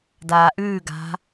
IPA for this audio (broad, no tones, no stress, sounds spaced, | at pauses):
d aː ʔ ʉː ɡ a̤